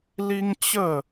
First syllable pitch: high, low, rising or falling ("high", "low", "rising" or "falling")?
high